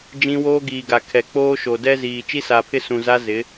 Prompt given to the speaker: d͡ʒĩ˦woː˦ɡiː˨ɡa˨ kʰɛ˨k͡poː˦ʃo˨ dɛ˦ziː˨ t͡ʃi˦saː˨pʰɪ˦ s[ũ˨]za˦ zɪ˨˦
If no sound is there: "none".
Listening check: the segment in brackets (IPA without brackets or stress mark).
ũ˨